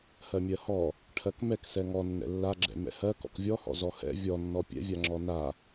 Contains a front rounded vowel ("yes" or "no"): no